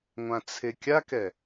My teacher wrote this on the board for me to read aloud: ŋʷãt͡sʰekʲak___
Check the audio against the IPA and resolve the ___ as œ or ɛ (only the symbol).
ɛ